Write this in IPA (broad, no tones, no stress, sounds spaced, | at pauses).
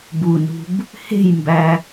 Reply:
b u n ṳ b | h e̤ j m b æ